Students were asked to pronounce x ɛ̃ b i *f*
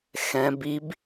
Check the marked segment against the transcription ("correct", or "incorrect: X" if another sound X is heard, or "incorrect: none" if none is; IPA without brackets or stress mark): incorrect: b